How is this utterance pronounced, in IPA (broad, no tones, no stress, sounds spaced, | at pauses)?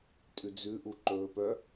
tʼ ʉ d͡z ʉ ʔ u ǃ ɵː p œ